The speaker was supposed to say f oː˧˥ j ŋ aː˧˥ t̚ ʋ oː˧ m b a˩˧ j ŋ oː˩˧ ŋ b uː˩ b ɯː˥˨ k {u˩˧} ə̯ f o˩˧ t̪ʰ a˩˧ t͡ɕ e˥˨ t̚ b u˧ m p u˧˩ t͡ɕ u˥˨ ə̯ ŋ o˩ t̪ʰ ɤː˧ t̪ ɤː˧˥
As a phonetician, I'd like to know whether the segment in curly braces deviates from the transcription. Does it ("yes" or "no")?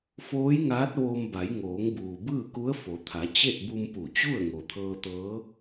yes